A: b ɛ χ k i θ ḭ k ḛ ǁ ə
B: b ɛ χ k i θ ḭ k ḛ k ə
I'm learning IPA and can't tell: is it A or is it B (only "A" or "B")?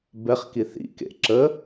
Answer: A